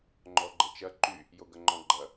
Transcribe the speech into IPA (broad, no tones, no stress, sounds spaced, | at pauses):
ŋ͡ǃ ɔ ɡ͡ǃ ə t͡ʃ ɐ ǃ y | j o ɡ ɐ ŋ͡ǃ ɔ̃ ɡ͡ǃ ɐ